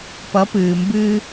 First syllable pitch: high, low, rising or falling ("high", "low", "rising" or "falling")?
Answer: rising